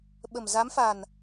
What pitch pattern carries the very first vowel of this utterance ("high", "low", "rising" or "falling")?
low